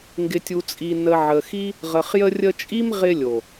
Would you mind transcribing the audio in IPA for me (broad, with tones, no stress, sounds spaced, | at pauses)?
ŋ ɡ ɪ˨ tʲ u˨ t͡sʼ i˨ n ə˨ ʕ ə˨ x i˦ | ʁ ə˨ χ j ə˧ rʲ ə˧ t͡ʃʼ i˦ m ʁ ɪ˧ lʲ o˨